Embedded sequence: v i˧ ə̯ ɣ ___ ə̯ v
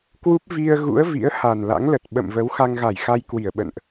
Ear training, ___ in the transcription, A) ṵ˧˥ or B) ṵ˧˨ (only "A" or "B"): A